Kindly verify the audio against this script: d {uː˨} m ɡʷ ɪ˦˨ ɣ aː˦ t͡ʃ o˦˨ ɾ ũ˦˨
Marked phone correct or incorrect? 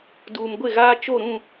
correct